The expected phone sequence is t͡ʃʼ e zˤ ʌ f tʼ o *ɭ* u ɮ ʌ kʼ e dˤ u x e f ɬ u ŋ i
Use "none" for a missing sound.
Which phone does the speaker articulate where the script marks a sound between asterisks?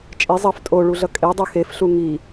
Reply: ɭ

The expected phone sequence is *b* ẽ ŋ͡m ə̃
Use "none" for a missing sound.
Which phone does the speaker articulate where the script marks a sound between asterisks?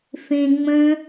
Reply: f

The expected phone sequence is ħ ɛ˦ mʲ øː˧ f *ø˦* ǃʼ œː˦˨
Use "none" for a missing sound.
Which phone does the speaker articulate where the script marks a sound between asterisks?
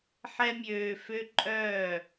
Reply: ø˦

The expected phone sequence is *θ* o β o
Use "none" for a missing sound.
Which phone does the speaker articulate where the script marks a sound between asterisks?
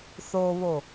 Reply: θ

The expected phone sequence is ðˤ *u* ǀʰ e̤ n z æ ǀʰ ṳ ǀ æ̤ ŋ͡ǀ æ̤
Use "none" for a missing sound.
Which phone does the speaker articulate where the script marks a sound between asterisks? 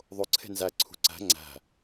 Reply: o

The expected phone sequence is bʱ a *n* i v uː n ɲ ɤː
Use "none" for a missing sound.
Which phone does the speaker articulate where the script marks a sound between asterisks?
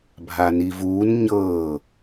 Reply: n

